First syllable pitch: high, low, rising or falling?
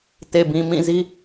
low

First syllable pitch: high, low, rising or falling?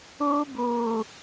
high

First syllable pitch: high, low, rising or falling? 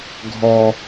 low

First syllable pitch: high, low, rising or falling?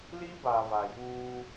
high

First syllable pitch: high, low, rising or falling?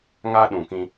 high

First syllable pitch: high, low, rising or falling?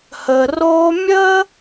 low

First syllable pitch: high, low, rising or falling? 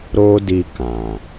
high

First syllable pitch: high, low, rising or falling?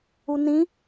low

